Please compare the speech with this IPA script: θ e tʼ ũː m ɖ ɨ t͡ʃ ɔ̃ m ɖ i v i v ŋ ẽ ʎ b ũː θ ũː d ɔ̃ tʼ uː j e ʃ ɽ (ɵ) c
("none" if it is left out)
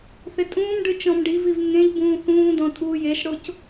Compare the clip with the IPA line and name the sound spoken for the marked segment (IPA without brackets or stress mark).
o